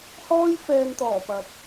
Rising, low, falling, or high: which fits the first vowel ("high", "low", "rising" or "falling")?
high